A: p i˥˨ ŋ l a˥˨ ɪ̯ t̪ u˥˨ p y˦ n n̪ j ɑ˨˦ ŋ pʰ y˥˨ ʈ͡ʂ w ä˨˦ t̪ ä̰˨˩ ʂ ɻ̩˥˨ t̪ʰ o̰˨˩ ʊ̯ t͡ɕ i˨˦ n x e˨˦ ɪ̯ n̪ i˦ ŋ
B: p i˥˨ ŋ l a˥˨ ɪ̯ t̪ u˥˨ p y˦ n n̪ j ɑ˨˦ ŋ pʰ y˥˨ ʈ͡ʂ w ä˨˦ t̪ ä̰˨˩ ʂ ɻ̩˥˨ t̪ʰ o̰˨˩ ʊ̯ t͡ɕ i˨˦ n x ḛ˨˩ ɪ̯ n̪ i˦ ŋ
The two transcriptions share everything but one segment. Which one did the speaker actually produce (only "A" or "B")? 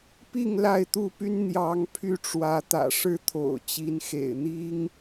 B